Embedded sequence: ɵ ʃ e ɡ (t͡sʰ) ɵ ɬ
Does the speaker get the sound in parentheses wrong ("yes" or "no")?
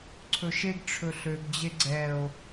yes